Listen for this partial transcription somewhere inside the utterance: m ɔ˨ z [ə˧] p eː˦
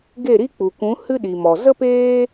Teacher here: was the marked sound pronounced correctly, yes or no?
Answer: no